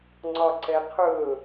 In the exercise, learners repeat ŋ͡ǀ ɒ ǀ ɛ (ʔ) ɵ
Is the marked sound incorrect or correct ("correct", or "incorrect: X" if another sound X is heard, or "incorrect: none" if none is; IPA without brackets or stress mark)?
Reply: incorrect: qʰ